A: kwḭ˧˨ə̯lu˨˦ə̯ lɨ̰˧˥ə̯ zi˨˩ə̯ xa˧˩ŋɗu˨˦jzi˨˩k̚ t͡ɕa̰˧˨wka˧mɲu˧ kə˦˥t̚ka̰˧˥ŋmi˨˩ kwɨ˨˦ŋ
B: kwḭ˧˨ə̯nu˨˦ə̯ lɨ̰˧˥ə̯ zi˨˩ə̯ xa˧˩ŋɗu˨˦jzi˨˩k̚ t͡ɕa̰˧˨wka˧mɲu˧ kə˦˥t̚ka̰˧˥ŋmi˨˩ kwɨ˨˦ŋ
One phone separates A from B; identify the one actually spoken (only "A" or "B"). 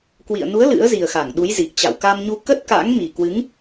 B